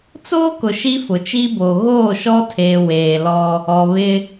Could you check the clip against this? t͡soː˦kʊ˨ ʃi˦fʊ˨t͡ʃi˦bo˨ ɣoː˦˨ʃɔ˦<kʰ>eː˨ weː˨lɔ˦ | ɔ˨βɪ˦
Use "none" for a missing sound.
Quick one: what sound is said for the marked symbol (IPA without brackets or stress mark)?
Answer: tʰ